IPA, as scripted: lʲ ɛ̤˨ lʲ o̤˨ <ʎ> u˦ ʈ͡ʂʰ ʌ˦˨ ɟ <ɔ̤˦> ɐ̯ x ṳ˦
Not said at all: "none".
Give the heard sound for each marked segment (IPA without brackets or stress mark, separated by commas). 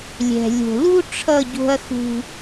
l, o̤˦